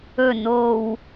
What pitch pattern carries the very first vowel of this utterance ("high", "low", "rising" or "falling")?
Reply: low